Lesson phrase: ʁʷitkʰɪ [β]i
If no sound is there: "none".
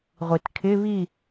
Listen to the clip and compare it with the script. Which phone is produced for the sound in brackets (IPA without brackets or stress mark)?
β